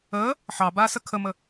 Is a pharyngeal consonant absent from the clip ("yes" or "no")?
no